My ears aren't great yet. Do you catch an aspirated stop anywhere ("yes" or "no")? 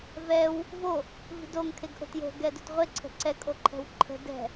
yes